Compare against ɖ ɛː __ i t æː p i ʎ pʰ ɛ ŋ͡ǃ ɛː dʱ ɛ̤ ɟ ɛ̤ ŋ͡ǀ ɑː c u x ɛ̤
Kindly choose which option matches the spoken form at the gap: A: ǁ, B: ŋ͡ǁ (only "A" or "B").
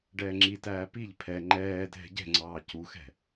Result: B